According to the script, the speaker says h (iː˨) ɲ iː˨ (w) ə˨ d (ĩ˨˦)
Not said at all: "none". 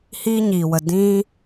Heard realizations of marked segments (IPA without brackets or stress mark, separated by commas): iː˦, w, ĩ˦